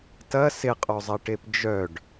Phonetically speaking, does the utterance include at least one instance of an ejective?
yes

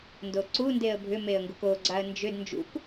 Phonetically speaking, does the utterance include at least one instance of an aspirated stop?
no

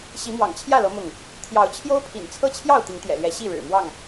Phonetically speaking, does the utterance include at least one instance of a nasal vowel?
no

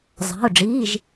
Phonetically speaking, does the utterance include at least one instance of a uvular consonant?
no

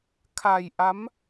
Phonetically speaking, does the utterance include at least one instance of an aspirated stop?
yes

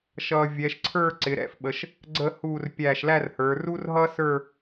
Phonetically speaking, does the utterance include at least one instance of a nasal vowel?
no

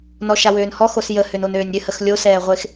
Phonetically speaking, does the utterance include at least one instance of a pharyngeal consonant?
no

